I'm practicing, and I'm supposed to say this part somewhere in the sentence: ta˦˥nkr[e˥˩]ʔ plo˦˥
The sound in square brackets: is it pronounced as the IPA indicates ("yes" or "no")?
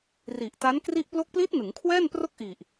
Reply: no